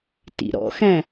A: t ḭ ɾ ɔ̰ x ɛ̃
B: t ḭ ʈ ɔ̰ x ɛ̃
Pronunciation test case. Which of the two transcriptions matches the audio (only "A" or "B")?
A